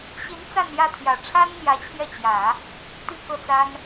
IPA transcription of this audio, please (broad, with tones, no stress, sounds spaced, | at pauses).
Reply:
ɕ i˧˥ n t͡s a˥˧ n j ä˥˩ t̪ʰ j ä˨˩ ʈ͡ʂʰ a˥ n n̪ j ä˧˥ t͡ɕʰ j ɛ˥˩ t͡ɕ j ä˨˩˦ | t̪ i˥˧ k ɤ˥˩ t͡s a˥ n